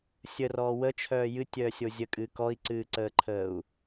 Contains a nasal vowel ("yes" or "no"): no